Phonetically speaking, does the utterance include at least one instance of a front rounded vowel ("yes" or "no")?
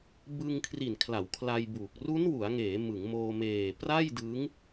no